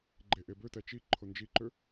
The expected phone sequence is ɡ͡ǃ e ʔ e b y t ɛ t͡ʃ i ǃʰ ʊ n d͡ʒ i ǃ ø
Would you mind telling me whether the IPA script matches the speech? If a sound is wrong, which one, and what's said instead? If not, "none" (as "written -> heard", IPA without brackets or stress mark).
y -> ø